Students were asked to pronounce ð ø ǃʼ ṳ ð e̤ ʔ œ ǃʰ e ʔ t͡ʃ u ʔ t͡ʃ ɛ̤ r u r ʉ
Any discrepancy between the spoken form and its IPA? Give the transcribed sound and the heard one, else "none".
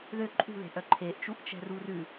none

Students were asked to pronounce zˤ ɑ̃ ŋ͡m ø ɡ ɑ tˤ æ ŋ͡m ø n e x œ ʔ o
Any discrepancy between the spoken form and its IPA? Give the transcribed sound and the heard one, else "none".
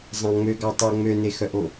æ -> œ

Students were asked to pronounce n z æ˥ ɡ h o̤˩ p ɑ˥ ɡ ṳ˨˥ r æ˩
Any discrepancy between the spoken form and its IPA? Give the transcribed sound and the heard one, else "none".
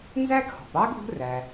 none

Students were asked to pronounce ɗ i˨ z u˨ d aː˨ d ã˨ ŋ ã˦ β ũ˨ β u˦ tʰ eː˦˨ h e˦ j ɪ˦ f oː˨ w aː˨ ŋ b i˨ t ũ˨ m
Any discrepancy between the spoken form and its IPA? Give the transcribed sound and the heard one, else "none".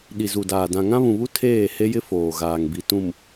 w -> ɣ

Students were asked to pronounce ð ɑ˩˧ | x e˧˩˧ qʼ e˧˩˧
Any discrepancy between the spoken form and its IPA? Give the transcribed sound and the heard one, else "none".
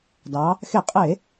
ð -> d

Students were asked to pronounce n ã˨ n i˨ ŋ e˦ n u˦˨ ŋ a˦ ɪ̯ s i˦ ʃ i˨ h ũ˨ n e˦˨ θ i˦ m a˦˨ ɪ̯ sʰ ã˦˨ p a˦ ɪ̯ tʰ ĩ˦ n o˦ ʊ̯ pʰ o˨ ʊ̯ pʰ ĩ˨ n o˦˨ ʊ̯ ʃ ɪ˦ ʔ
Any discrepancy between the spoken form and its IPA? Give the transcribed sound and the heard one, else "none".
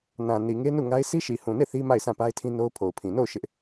none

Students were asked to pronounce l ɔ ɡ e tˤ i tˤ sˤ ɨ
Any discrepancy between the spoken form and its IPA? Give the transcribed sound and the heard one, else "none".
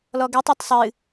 none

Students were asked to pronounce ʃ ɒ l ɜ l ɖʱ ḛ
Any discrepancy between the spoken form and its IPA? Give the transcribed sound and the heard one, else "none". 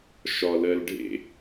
none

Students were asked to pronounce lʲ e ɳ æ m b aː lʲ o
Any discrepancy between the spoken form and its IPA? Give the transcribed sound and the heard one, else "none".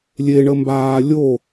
æ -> ə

